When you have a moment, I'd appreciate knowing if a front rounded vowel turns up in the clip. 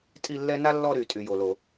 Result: yes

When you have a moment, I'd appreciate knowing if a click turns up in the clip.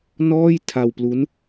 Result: no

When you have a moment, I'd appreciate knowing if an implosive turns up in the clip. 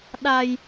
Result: yes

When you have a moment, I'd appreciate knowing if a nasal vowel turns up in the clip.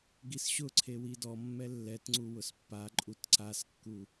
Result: no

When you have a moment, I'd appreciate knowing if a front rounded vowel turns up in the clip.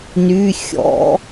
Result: yes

